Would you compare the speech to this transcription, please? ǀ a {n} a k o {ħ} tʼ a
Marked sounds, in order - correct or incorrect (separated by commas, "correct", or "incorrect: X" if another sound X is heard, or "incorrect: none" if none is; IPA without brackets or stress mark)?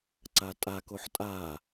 incorrect: tʼ, correct